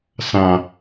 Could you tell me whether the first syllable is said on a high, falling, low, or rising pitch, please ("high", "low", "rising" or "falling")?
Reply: low